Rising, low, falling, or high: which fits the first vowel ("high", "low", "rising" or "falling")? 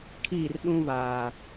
falling